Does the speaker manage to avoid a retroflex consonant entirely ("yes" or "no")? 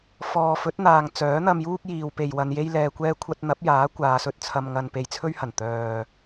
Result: yes